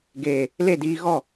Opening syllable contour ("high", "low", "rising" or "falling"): low